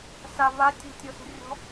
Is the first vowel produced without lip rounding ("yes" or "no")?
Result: yes